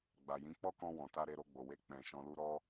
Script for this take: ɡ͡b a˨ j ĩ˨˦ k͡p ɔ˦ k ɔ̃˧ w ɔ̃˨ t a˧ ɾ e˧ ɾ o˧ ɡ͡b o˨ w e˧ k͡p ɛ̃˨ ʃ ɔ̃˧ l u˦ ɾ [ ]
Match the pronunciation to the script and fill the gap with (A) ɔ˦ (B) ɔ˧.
B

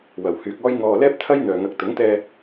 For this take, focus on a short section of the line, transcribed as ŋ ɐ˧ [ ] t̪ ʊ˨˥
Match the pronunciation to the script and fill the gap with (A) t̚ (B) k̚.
B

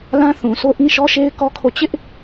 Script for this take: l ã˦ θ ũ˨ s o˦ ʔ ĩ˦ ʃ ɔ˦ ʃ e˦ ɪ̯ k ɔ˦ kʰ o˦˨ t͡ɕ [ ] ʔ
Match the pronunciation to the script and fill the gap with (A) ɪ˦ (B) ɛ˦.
A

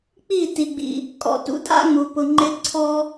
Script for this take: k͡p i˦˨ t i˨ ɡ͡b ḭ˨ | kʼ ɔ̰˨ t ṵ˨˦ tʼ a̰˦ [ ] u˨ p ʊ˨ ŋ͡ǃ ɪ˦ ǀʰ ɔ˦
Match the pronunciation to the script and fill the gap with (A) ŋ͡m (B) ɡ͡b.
A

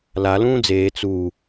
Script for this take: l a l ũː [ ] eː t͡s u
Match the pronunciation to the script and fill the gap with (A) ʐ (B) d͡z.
B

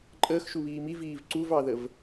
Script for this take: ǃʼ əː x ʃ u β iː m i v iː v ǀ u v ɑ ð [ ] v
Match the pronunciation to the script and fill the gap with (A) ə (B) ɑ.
A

